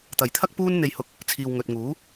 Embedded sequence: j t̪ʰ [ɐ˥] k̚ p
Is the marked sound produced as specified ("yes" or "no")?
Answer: yes